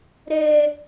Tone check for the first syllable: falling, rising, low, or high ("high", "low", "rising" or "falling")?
low